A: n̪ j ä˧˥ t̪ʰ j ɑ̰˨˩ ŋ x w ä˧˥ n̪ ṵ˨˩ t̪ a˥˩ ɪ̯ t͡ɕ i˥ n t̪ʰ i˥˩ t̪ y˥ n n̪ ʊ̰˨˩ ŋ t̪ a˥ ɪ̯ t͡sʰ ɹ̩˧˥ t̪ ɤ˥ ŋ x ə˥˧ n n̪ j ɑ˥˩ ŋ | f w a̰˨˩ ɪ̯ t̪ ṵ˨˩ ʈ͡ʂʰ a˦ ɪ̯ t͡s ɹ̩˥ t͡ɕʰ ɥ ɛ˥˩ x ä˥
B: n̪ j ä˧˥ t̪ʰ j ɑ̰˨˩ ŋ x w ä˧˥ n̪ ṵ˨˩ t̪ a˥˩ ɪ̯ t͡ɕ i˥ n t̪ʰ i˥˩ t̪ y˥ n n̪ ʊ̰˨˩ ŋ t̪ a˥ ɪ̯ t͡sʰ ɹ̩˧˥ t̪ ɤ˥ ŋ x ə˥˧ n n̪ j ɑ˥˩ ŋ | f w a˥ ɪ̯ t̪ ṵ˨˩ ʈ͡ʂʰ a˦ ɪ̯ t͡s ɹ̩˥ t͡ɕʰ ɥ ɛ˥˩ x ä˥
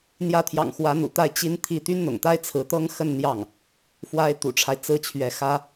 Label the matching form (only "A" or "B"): B